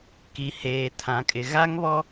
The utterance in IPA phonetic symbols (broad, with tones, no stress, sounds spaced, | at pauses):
k i˨ h eː˨ tʰ ã˨ kʼ ɪ˨ ɣ a˦ ŋ β ɔ˦